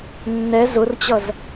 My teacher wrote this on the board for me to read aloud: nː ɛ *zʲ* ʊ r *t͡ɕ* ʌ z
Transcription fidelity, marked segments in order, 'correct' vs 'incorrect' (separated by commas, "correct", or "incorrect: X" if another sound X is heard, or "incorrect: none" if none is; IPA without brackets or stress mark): incorrect: z, correct